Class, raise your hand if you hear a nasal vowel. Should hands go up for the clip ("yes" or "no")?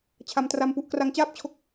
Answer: no